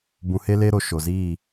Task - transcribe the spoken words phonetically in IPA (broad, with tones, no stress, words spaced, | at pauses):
bũ˨he˧le˧ɾo˨ ʃo˨ziː˦˨